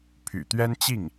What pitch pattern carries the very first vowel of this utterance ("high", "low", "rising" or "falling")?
low